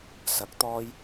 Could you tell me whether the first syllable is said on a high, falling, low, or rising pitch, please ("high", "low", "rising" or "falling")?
rising